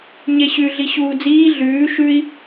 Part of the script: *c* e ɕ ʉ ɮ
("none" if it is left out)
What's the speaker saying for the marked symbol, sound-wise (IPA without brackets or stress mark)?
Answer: ɲ